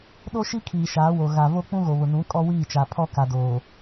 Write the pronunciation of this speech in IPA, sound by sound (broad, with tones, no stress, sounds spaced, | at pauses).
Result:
ɗ o˦ ʃ i˦ kʰ iː˨ ʃ aː˨˦ w o˨ ɣ a˨ v o˦ k͡p ũ˦ ɣ o˨ β ʊ˨ n ũ˨˦ kʼ ɔ˦ w iː˦˨ t͡ʃ a˨ pʰ ɔ˦ k a˨ d oː˨